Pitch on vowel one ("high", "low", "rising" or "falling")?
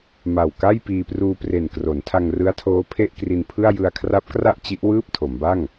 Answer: low